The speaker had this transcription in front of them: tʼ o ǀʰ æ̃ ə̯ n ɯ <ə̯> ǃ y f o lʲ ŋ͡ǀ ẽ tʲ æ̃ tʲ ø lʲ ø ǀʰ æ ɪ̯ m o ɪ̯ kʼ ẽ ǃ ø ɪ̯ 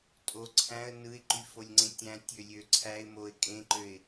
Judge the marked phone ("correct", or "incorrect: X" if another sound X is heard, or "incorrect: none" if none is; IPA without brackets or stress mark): incorrect: ɪ̯